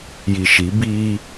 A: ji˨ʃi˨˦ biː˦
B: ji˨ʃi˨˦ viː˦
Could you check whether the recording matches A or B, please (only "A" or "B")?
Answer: A